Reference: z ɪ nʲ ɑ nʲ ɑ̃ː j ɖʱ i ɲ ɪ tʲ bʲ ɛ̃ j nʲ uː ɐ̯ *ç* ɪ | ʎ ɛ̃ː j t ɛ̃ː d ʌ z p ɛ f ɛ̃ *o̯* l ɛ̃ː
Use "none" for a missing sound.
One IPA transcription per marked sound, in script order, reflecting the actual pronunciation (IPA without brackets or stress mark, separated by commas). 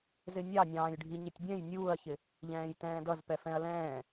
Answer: ç, ɐ̯